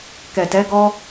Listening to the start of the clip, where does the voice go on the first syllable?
low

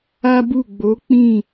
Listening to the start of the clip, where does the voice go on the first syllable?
high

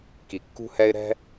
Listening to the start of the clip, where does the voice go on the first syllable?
low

